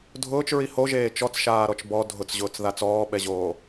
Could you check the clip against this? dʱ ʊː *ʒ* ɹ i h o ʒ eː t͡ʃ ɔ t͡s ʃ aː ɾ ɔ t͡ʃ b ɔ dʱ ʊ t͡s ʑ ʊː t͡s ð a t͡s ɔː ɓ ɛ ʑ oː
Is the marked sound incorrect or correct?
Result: incorrect